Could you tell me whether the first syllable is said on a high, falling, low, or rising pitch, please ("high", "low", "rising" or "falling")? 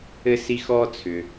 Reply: high